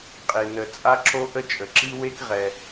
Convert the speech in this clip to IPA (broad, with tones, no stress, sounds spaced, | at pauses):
qʼ e˩ n ə˩ t͡sʼ a˥ ǁ o˥ ʔ ə˥ t͡ʃʼ ə˩ ǁ i˥ w e˥ k ʁ ɛ˩